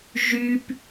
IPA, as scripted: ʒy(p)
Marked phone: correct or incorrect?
correct